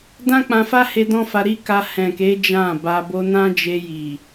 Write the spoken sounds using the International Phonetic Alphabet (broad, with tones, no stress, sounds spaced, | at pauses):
d ã˦ k͡p ã˧ f a˦ h e˧ d ɔ̃˦ f a˧ ɾ i˦ k a˧ h ɛ̃˨ k e˨˦ d͡ʒ ã˦˨ b a˧ b o˧ n ã˦ d͡ʒ e˧ j i˨